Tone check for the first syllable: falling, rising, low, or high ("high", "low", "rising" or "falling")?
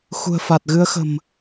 low